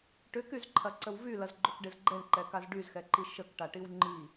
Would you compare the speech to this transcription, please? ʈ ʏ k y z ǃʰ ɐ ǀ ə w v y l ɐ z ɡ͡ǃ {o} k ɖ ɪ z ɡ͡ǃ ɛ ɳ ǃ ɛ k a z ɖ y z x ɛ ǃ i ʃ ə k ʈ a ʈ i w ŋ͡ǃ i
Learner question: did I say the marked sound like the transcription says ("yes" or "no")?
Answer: yes